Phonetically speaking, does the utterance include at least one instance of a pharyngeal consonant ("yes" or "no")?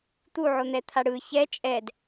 yes